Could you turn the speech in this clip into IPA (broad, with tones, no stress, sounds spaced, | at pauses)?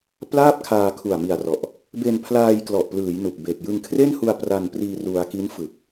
p l aː˥˩ p̚ kʰ aː˧ kʰ u˨˩ a̯ m i˨˩ a̯ r ɔ˨˩ ʔ | b e˧ n pʰ l aː˧ j k l ɔ˨˩ ʔ p l ɯː˩˦ j n u˨˩ k̚ b e˨˩ k̚ j ɯ˧ ŋ kʰ r e˥˩ n h u˧ a̯ p r a˧ n p r iː˧ r u˧ a̯ k i˦˥ n f ɯ˨˩ k̚